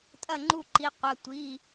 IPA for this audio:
tʼ ɐ˥˩ ŋ͡ǃ u˥˩ ǃ i˩˧˩ qʷ ɐ˩˧˩ tʷ i˩˧˩

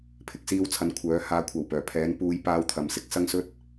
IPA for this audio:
pʰ ɪ˨ k̚ s iː˧ w t͡sʰ ɐ˨˧ n kʷʰ œː˨˥ h aː˧ kʷʰ ɐ˨ w p œː˨˩ pʰ ɛː˨˥ n p uː˨˧ j p aː˧ w t̪ʰ ɐ˨˧ m s ɪ˧ k̚ s ɐ˥ ŋ s ɵ˥ t̚

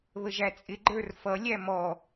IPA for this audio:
β ə ʒ æ t͡sʼ ɪ ɡ͡ǃ ə˞ r f ʌ lʲ æ m ɔ

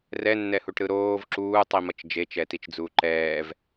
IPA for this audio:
r ɛ nː ɛ h u ʈ ɾ ɯ ɾ oː v ǁ uː tˤ i m ʌ t͡ʃ d͡ʒ e t͡ʃ ɛ t i t͡ʃ d͡z uː ǃ ɛː v

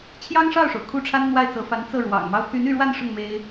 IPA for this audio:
t͡ɕʰ j ɑ˥ ŋ ʂ ɑ˥˩ ʊ̯ ʂ o˩ ʊ̯ kʰ u˥˩ ʈ͡ʂʰ a˥ n n̪ w a˥˩ ɪ̯ t͡s ɤ˧˥ f a˧˥ n t͡s ɤ˥˩ ɻ w ɑ̰˨˩ ŋ m ɑ˧˥ ʊ̯ pʰ y˧˥ n y˥˧ ɻ w a˥˧ n ʂ ʊ˥˩ ŋ m e˥ ɪ̯

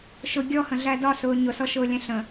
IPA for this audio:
ʃ ʊ ɡʲ ɔ h ə̃ ɮ æ d ɒ s ʊː ɲ ʊ s ɔ ʃ ʊː lʲ æ̃ ɬ ə̃

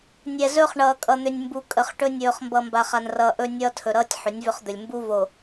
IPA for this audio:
nʲ ɛ˨ z ɵ˦ χ ɳ ʌː˨ kʼ ʌ˨ n̪ ʏ˨ nʲ m b u˨ kʼ ə˨ χ ʈ ɵ˦ nʲ ɵː˨ χ m b ʌ˨ m b a˨ χ a˨ n r ʌː˨ ʔ ɵ˦ nʲ ʌː˦ tʰ ɵ˨ ɾ ʌː˦ tʲ ħ ʏ˨˦ nʲ v ʏ˦ χ d̪ ɵ˨ lʲ m b u˦ v o˨

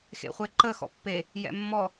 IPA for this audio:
x ḛ χʷ e ǃ ə x ɔ̰ pː e | j ɛ̰ mː ɔ

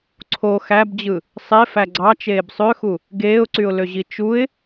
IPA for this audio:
ǀʰ o x æ b d͡ʑ ɯ | sˤ e f æ ɡ͡ǀ ɑ t͡ʃ eː b sˤ ø x u | ɡ eː ʊ̯ ǀ y ʊ̯ l ø ʑ i t͡ʃ u ɪ̯

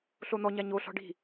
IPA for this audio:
ɬ o n̪ ɔ ɲ a ɲ o ɬ ɔ̤ ɖ i̤

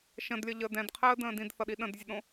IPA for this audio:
ʃ ə̃ d lʲ ʌ ʎ əː d ɛ̃ d qʰ əː d ə̃ː d ĩ d θ ʌ ɗ i ɗ ə̃ d zʲ ə ɗ õ

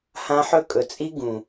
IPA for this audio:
h ã˦ ħ ɵ˦ kʼ ɵ˨ t͡sʼ i˦ ɡ ũ˨

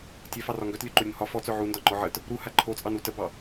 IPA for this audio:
tʲ œ f ɑ r ɒ ŋ ɡ œ t lʲ o ǃ o ɾʲ u n h ɒ f ɔ t͡s œ ʕ u n d ɒ ŋ͡ǃ ɔ ʕ ə t | ɾ u h a ǃʰ o t͡sʼ ɑ n u t ə b ɑ

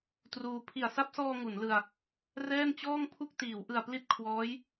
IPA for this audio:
t r uː˧ pʰ i˨˩ a̯ s a˦˥ p̚ s ɔː˧ ŋ u˩˦ n l ɯ˧ a̯ | r ɛː˥˩ n t͡ɕ ɔː˥˩ ŋ pʰ u˥˩ k̚ t iː˩˦ w ʔ ɯ˨˩ a̯ p l i˦˥ t̚ kʰ w ɔː˦˥ j

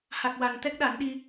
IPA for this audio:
h a˨˩ k̚ w a˨˩ n t̪ ɛ˦˥ k̚ ɗ a˨˩˦ n ɗ i˧

